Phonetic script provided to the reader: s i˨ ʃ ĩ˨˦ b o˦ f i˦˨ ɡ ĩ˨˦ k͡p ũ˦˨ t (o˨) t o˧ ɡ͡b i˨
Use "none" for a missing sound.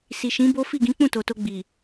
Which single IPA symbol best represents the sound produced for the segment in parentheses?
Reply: o˨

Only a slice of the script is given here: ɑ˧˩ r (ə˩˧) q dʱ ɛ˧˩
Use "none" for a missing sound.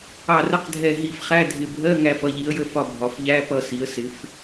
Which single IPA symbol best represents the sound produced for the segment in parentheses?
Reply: ə˧˥˧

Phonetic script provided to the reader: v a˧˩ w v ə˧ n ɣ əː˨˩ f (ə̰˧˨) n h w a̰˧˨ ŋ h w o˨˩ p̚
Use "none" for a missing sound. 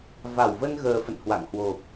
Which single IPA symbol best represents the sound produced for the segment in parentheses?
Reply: ə̰˧˨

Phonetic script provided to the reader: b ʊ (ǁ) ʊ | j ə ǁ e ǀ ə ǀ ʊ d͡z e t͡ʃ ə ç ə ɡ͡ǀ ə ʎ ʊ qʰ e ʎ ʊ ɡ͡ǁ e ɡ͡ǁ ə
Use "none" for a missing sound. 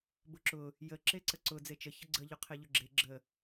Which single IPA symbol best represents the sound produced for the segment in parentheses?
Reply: ǁ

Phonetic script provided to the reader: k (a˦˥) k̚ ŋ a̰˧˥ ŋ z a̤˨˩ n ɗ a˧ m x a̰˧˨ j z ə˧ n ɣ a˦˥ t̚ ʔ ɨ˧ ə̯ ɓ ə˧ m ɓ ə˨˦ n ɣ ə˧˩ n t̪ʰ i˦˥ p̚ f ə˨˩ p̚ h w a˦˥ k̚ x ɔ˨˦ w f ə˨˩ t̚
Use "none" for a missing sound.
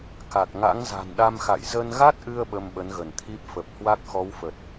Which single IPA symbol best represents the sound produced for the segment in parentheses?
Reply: a˨˩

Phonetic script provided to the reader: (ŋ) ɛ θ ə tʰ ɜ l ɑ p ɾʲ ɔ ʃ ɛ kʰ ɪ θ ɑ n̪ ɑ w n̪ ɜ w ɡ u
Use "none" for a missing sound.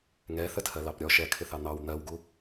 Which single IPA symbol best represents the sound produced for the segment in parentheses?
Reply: ŋ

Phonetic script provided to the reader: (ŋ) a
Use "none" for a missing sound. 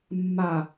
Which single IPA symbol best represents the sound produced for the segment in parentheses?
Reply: mː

